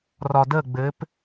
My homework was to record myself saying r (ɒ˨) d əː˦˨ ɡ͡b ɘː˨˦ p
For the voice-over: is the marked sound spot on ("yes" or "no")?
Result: yes